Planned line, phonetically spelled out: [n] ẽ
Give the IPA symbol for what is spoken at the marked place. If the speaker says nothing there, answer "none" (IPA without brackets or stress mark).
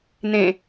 n